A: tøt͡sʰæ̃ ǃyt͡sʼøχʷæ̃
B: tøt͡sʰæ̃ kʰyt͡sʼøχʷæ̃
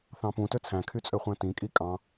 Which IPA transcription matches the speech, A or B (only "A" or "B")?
B